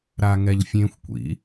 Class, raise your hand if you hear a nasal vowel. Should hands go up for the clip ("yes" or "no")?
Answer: yes